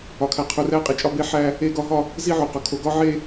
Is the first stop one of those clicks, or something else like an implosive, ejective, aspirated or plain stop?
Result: aspirated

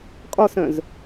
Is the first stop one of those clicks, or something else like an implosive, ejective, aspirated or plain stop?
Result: ejective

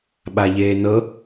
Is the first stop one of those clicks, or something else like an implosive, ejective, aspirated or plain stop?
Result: implosive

